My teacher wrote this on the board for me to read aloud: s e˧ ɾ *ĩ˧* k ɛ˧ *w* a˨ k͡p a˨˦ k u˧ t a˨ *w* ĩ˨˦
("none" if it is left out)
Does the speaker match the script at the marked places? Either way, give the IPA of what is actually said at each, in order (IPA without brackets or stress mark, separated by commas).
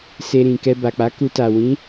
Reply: ĩ˨, b, w